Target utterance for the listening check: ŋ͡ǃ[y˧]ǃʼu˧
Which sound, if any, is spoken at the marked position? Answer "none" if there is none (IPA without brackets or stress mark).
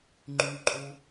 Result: y˧